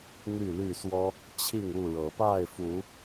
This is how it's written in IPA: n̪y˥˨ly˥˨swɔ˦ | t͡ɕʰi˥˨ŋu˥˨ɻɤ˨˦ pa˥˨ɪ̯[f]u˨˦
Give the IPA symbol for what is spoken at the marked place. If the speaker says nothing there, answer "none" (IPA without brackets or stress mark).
f